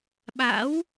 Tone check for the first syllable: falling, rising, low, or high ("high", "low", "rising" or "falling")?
rising